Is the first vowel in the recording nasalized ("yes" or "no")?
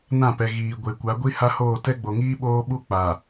yes